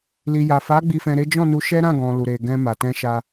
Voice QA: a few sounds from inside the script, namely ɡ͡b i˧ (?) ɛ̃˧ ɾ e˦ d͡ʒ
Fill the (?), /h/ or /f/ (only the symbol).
f